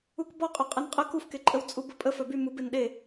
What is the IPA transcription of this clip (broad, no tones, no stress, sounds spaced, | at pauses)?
u k b ɔ qʼ œ qʼ ɛ n qʼ ə k u f k e ǃʼ ə w t͡sʼ u b ə pʼ ə f œ b y m u b e n ɗ e